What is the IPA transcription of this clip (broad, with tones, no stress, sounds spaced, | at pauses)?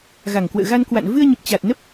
ɣ a˨˩ ŋ k w ə̰ː˧˨ ɣ a˧ n k w a̰˧˨ n v ɨ˧ ə̯ ɲ ə˨˩ p̚ t͡ɕ a˨˩ t̚ n ə˦˥ p̚